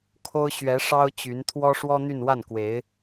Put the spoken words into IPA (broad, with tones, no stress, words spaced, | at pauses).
kʰo˥ʊ̯ ɕɥɛ˧˥ ʂɑ˥ʊ̯t͡ɕy˧˥n t̪ʰwɔ˥ʂwɔ˥n̪y˥˧nwa˥˩n kwe˧˥ɪ̯